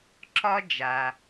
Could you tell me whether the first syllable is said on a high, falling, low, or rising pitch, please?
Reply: high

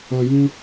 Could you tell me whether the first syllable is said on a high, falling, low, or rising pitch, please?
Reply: low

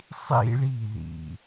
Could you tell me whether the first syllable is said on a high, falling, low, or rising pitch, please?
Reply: falling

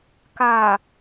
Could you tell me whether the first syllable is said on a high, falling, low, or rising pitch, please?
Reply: low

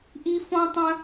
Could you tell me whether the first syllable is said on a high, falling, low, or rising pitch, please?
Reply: high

